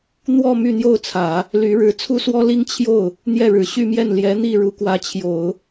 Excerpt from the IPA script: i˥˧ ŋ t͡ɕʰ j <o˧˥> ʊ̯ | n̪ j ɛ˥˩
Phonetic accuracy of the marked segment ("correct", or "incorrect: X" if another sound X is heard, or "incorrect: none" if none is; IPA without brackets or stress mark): incorrect: o˥˩